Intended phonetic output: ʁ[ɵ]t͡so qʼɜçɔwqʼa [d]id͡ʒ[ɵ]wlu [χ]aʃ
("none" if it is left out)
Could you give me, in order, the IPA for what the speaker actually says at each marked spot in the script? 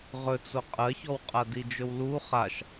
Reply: ɵ, d, ɵ, χ

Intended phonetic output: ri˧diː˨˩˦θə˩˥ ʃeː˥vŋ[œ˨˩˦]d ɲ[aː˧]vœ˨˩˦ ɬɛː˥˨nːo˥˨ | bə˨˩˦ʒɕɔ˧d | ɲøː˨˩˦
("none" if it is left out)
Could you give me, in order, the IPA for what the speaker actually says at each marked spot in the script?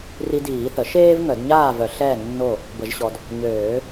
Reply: œ˨˩˦, aː˥˨

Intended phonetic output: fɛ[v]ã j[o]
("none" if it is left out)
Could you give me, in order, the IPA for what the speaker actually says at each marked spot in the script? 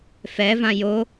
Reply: v, o

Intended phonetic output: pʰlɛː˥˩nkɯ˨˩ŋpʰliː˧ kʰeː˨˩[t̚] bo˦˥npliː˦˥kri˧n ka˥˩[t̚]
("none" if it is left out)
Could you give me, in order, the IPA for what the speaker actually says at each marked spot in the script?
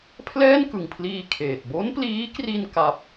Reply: t̚, p̚

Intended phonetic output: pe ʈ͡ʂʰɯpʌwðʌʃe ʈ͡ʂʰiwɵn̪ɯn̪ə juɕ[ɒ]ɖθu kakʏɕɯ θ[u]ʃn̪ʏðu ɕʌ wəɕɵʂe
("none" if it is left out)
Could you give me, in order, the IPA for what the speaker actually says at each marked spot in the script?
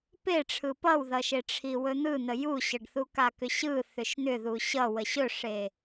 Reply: ʌ, ʏ

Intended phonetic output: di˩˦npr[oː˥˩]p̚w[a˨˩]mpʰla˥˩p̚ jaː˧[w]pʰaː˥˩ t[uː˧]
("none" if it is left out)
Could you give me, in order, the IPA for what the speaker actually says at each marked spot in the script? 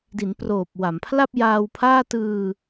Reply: oː˨˩, a˩˦, w, ɯː˧

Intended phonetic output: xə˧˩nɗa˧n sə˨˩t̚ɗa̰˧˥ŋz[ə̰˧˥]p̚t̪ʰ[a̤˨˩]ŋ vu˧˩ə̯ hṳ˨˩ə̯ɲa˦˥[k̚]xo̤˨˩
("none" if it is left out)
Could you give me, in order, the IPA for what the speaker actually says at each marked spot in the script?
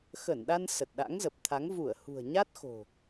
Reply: ə˨˩, a˨˦, t̚

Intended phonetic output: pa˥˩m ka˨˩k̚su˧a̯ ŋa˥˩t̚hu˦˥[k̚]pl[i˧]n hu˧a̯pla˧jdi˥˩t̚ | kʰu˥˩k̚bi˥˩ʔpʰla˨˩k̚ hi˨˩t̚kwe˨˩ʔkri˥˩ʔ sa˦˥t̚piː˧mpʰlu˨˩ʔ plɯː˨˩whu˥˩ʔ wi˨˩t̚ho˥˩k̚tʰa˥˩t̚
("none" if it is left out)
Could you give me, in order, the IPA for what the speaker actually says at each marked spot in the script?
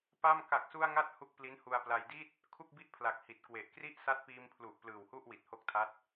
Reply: k̚, i˦˥

